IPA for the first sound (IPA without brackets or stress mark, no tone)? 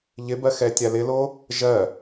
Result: ʎ